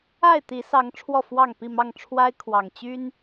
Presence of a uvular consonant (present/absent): absent